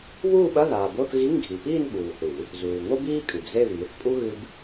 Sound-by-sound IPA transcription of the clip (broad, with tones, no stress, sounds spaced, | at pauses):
β uː˥˧ ɓ ɐ˧˥˧ ð aː˨ b o˧˥˧ θ ɣ i˧˥˧ ŋ ɡʱ i˨ p iː˥˧ n ɓ uː˨ θ ɨ˨˩˦ | z uː˨ ŋ o˥ b iː˥ kʼ ɨ˨ b z e˥˧ β iː˨˦ θ pʼ u˥ ɣ ɨ˥ b